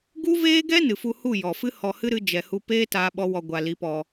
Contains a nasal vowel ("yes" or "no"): no